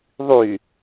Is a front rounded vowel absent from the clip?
no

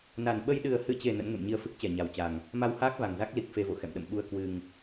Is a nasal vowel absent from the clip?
yes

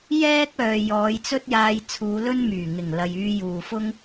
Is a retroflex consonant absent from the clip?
yes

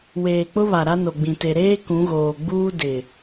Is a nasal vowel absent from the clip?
no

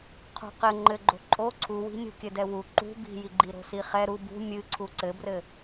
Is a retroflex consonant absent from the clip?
yes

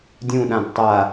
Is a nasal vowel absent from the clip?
no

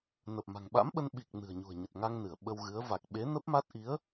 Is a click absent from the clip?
yes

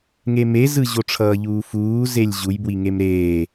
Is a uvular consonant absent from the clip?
yes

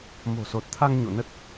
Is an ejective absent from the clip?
yes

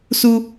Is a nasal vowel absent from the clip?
yes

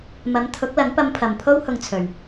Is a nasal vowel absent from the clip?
yes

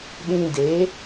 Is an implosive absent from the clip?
no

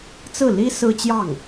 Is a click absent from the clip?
yes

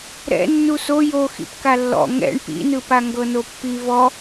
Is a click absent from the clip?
yes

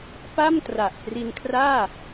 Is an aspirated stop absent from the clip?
no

